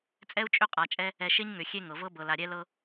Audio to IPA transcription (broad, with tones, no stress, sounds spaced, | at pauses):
t͡sʼ ɛ˦ u̯ t͡ʃʼ ʏ˦˨ qʼ a˨ t͡ʃʼ ɛ˦ | ɛ˨ ʃ e˦ ɲ ŋ ʏ˨ xʲ e˦ ŋ ɤ˨ v ɤ˦ b ɤ˨ l a˨ ɾʲ ɛ˦ l ɤ˦